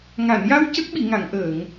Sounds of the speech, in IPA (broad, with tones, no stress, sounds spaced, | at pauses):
ŋ a˨˩˨ n j a˧ w c ə˦˥ k̚ ɓ i˨˩˨ ŋ a˨˩˨ ŋ ʔ əː˨˩˨ ŋ